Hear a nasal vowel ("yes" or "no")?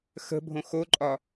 yes